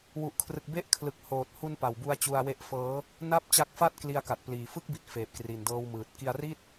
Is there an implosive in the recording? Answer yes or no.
no